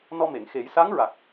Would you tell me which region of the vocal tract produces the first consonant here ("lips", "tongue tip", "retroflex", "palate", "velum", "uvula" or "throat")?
tongue tip